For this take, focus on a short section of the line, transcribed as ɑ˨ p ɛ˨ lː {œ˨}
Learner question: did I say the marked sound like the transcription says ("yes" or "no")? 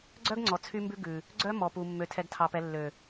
no